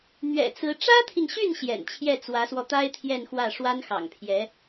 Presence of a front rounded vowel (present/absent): present